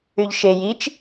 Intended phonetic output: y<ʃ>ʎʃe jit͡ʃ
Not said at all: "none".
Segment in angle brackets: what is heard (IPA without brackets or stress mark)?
none